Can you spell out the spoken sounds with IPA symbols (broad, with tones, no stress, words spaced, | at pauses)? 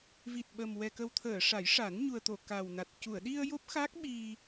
vi˨˩t̚ɓə˨˩m wɛ˨˩kə˨˩wt̪ʰəː˨˩˨ ʂa˨˩˦jʂa˨˩˦n ɲu˨˩ə̯t̪o˨˩˨ ka˨˩wna˨˩t̚ cu˨˩˨ə̯ɗi˧ə̯ jo˦˥p̚xa˦˥k̚ɓi˧